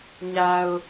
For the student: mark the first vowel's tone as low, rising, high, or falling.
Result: low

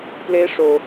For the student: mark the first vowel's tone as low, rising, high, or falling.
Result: high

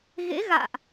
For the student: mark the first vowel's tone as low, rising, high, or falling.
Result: rising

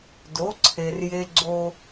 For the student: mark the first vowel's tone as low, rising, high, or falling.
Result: rising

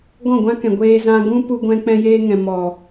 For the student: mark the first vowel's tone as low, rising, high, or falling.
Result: falling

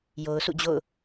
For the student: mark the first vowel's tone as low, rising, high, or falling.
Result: low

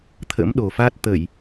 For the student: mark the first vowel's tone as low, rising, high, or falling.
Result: rising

